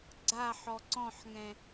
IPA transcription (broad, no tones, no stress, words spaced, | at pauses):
ɡ͡ǀaħɔ ǀɔ̃ħŋɛ̃